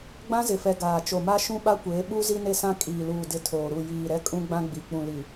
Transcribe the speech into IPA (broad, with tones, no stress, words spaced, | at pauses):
ɡ͡bã˦zɪ˨fɛ˨ ɡaː˨t͡ʃo˨ma˦ʃũ˦ ɓa˦kʷeː˨˦ ɓu˦ zi˦ne˦sã˦ kʼiː˨luː˨ dɪ˦˨tʰoː˨ɾu˦˨ jiː˨ ɾɛ˦kʼũ˦ɡ͡bã˦ ɡ͡bi˨ k͡pũ˨li˨